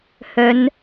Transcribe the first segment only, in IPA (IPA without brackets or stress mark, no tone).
h